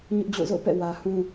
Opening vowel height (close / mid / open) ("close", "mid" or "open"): close